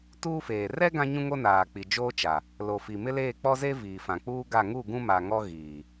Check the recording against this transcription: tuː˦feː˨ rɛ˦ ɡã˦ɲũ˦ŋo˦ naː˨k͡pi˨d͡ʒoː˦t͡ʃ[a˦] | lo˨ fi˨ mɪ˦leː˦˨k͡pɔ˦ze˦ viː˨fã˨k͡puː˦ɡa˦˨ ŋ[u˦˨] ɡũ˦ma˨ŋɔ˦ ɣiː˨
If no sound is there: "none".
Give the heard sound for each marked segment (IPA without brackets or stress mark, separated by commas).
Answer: a˨, u˦˨